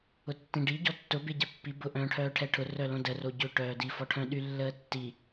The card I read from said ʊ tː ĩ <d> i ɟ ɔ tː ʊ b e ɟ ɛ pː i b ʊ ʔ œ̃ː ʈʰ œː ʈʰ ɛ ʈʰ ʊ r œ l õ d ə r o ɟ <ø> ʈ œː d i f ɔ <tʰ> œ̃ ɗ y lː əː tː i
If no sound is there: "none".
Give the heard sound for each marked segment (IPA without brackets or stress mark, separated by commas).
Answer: ɖ, ø, ʈʰ